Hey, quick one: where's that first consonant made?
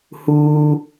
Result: throat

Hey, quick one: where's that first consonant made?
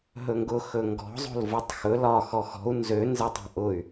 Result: throat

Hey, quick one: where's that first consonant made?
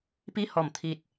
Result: lips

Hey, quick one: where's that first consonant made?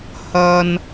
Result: throat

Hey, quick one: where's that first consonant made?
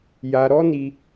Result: palate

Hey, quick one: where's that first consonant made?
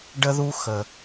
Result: retroflex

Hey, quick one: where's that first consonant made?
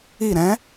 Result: tongue tip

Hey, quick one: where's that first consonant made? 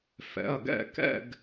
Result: lips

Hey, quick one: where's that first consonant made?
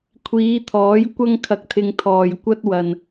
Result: velum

